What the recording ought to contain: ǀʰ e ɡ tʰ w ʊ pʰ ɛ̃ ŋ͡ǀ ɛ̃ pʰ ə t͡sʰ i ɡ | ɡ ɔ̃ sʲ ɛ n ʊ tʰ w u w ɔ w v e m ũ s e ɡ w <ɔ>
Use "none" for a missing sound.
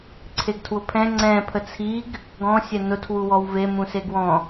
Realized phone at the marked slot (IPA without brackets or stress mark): ɔ̃